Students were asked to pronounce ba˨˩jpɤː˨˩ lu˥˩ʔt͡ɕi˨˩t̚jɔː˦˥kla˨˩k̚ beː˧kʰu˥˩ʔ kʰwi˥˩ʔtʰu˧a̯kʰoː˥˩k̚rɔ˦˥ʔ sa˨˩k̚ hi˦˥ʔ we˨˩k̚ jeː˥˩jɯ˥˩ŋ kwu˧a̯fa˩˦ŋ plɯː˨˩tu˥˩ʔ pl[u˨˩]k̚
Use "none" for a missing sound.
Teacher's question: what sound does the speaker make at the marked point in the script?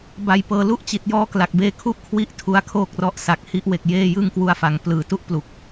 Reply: u˨˩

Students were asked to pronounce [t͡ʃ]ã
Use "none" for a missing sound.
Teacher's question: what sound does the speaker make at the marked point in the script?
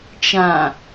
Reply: t͡ʃ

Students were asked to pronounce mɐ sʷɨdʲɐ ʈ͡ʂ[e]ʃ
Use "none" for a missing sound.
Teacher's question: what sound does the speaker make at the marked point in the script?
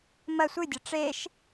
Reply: e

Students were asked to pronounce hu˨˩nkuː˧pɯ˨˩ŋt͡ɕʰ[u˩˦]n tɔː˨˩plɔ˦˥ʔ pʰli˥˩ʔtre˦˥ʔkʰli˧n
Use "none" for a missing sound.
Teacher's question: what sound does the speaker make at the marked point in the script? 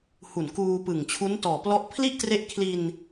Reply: u˦˥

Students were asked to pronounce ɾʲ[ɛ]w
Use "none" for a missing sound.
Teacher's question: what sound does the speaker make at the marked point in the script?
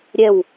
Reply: ɛ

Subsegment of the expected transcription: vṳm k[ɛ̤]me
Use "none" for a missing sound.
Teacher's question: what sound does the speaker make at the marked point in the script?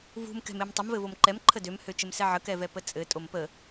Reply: ɛ̤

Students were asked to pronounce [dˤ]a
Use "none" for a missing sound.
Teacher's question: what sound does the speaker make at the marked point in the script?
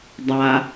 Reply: dˤ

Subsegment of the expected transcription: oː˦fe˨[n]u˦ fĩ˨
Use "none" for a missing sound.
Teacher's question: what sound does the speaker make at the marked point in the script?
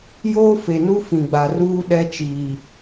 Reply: n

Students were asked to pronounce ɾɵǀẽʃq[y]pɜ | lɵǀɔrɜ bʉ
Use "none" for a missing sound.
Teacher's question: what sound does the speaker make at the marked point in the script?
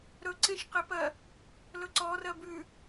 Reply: e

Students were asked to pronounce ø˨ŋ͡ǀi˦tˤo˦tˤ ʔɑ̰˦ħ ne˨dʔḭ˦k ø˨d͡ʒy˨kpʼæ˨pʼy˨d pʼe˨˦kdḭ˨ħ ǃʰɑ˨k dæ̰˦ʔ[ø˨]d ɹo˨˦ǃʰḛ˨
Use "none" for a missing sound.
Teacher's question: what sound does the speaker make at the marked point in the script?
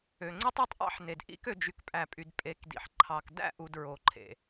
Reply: u˨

